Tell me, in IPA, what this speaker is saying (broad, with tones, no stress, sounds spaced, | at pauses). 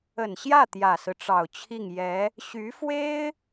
ə˨˩ n ɕ j ä˥˩ t̪ j ä˨˩ s ɹ̩˦ ʈ͡ʂ ɑ˨˩ ʊ̯ t͡ɕʰ i˥˩ ŋ j ɛ˧˥ | ɕ y˧˥ f w e˥ ɪ̯